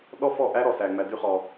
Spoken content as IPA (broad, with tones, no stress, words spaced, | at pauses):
ɗɔ˦fɔ˦˨ʔæ˦ ɾɔ˧sæ˧ ŋ͡mæ˧dy˦χɔ˧